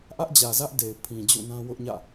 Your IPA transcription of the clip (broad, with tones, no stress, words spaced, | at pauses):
ʔä˦ʔd͡ʑä˨zä˦ʔ de˨ɪ̯ pʰĩ˨ d͡ʑṵ˦˨nã˦ wʊ˦ʔɲä̰˦˨